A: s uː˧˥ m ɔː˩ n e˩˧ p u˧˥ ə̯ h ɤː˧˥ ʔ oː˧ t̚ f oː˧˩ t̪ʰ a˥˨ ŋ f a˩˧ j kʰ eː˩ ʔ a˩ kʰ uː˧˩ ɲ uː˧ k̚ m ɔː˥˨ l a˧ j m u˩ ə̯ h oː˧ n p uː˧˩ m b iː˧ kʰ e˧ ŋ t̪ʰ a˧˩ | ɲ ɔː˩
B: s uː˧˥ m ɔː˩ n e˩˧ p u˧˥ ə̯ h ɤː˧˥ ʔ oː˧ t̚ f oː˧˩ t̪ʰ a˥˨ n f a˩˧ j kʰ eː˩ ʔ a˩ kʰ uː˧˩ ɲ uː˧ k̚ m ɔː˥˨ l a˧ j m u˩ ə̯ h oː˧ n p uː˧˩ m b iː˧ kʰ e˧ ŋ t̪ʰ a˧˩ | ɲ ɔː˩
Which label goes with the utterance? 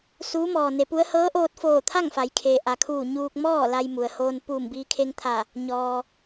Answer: A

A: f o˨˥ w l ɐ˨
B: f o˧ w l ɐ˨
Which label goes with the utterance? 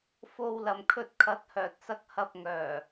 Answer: B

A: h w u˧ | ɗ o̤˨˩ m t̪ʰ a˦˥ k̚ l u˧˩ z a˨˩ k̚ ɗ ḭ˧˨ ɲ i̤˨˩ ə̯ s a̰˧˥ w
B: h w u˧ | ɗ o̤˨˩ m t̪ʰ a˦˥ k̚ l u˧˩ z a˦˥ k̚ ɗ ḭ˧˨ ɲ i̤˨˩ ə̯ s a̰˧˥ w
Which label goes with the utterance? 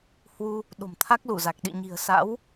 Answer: A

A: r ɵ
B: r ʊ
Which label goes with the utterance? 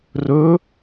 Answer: A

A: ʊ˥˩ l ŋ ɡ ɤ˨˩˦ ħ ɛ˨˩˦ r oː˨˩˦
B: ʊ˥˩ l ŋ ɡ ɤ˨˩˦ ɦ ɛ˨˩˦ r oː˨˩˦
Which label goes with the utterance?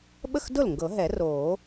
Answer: B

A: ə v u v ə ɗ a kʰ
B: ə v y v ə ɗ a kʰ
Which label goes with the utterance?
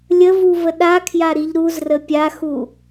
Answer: A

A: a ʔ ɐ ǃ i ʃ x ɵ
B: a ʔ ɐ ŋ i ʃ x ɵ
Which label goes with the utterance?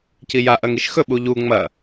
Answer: B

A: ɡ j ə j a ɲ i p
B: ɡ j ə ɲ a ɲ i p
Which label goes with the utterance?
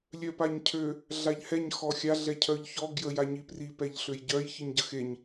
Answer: A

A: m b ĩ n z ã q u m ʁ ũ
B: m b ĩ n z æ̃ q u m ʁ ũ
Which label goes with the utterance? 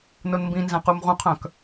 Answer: B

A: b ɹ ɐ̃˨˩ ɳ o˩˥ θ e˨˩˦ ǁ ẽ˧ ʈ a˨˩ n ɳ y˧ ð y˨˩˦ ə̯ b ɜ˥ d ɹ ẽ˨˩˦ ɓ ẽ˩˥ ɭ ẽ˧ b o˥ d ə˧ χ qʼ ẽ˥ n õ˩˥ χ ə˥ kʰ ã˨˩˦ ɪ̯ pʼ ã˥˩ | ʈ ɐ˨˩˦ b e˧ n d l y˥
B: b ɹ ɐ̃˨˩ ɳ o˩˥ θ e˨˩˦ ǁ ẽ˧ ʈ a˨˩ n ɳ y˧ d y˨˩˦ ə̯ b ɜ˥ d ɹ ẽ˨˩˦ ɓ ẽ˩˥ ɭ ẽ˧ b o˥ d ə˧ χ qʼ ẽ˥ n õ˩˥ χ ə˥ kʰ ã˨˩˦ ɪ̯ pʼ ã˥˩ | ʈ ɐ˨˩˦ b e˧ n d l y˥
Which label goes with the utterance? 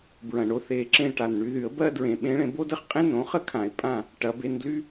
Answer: A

